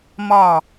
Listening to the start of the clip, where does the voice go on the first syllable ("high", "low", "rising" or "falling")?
falling